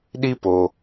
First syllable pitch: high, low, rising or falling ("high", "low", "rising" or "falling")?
high